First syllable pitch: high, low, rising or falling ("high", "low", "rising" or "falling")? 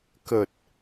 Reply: low